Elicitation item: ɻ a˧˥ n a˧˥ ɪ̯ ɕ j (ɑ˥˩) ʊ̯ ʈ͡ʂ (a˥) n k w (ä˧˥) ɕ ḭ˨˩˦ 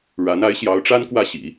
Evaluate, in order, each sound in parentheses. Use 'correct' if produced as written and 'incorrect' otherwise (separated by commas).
incorrect, correct, incorrect